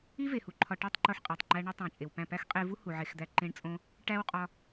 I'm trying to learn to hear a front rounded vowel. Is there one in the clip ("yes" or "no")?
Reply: no